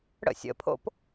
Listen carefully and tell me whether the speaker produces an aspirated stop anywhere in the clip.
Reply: yes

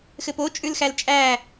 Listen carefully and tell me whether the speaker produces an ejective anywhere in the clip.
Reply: yes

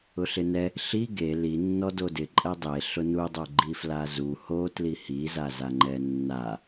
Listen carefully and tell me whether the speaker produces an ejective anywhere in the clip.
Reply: yes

